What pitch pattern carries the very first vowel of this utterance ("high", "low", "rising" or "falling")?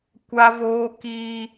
high